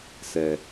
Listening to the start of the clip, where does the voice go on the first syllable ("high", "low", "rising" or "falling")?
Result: low